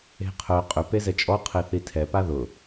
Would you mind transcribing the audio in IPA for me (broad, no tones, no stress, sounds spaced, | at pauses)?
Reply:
e̤ qʰ œ qʼ ʏ p e z ɛ t͡ʃʼ ɔ qʰ e θ i tʰ ɛ p a ð ʊ